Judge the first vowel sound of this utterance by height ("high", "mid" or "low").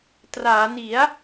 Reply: low